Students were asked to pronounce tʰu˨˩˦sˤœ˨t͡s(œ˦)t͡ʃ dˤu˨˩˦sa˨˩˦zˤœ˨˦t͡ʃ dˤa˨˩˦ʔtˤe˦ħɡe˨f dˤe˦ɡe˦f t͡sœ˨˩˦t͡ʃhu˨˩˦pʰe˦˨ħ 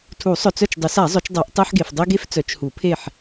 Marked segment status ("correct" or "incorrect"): incorrect